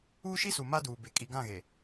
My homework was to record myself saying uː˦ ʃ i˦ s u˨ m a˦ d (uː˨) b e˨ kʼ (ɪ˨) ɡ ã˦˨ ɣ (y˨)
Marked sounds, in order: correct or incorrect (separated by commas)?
correct, incorrect, incorrect